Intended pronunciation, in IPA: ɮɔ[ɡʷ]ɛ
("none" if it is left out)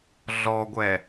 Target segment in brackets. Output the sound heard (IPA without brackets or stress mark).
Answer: ɡʷ